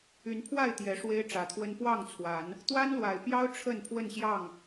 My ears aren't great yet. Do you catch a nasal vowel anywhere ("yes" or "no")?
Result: no